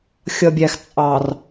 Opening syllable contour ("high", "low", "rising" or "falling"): low